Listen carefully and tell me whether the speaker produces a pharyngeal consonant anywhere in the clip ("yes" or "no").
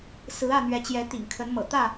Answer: no